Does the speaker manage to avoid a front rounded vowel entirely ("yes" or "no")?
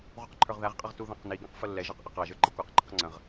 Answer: yes